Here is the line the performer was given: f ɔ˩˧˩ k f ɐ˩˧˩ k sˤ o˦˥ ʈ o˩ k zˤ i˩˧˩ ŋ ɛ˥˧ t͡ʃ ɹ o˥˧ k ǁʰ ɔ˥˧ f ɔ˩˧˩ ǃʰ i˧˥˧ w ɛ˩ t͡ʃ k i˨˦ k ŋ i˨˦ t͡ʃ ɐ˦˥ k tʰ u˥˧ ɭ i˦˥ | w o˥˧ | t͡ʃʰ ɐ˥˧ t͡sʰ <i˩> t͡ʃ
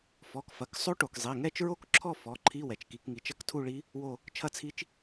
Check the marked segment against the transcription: incorrect: i˦˥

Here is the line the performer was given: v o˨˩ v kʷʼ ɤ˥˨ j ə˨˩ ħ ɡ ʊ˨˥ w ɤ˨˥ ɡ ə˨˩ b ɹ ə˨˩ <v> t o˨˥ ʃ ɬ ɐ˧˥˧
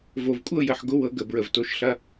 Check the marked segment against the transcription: correct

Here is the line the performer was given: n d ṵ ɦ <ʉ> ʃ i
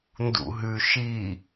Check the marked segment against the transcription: correct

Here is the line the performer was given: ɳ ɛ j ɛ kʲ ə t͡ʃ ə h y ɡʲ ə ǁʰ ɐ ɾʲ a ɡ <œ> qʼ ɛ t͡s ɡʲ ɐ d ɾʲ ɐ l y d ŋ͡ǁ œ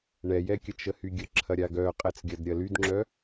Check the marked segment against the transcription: correct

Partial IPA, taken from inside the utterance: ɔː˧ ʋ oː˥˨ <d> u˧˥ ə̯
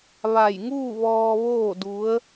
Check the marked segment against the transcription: correct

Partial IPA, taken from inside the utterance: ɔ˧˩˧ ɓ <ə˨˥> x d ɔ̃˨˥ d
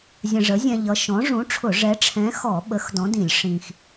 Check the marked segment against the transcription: correct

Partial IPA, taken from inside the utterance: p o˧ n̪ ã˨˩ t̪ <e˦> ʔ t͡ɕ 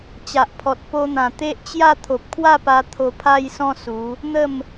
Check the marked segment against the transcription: correct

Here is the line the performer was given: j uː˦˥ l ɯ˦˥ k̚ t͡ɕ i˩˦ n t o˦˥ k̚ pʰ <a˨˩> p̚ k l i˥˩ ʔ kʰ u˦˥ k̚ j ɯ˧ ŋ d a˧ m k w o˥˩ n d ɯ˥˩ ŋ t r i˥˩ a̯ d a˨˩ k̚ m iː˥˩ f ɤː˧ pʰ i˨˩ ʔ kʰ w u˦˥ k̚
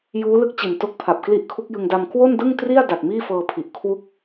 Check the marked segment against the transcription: correct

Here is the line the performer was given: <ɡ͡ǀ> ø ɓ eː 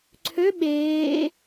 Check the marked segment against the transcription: incorrect: ǀʰ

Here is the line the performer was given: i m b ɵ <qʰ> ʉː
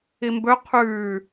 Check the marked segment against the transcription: correct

